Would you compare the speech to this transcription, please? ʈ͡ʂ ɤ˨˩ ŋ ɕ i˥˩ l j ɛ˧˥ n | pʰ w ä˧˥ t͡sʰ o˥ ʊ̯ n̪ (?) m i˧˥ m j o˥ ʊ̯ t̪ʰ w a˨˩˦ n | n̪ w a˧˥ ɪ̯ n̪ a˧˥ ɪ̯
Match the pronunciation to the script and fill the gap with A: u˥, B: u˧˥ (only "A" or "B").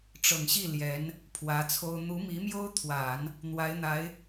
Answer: B